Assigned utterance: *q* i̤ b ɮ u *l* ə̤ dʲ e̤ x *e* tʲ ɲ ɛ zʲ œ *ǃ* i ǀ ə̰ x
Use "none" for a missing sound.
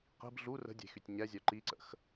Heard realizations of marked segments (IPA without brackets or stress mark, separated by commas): q, r, y, ǃ